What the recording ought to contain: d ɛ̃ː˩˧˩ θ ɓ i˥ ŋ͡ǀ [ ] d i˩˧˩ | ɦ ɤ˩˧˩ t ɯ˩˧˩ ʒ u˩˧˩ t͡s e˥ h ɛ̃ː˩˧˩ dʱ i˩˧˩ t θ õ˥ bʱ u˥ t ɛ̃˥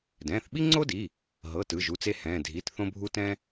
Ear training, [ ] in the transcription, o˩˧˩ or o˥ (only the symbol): o˥